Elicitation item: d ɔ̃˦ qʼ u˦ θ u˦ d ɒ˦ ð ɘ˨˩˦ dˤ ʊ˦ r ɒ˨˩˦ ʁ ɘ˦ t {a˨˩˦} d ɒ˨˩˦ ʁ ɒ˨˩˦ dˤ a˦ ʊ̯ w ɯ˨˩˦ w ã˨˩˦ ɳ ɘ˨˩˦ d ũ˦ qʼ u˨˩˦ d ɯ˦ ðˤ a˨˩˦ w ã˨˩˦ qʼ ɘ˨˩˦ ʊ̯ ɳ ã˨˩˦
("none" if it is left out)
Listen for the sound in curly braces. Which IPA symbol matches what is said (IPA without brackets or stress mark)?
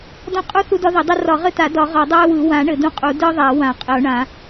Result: a˨˩˦